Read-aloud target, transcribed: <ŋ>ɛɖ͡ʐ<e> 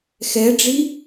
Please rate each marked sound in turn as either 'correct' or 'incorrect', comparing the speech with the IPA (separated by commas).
incorrect, incorrect